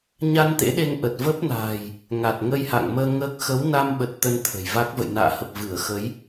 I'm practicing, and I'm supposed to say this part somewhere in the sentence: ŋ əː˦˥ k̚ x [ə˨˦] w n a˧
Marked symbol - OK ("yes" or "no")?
yes